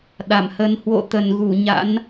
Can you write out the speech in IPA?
ɗ a˧˩ m h ə˨˦ n h w o̰˧˨ t̪ ə˧˩ n ɣ u˧˩ ɲ a̰˧˥ n

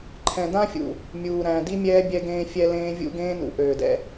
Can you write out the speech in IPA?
ǃʰ ɛ̃˨ d ã˦ fʲ ṵ˨ | mʲ uː˨ ɾ æ̃˨ d i˦ mʲ ɛː˦ bʲ ɛ˦ ɡ ẽː˦ fʲ ɛ˦ l ẽː˦ vʲ ṵ˦ ɡ ẽː˦ n ṵ˨ ʔ øː˨ d ɛ̰˦

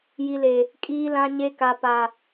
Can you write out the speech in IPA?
j i˨ l e˨ | kʼ iː˨ l ã˨ ɲ e˨ k a˨ p a˨

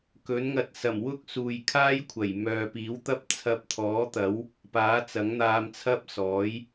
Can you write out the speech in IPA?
k ɵ˨˥ n ŋ ɐ˧ t̚ s ɐ˨˩ m w ʊ˥ k̚ s uː˨ j kʰ aː˥ j kʷʰ ɐ˨˩ j m œː˨ p iː˨˥ w t̪ ɐ˥ p̚ t͡sʰ ɐ˧ p̚ t̪ʰ ɔː˨˥ t̪ ɐ˨˥ w | p aː˨˥ t͡s ɐ˨˥ ŋ n̪ aː˧ m t͡sʰ ɐ˥ p̚ s ɔː˨˥ j

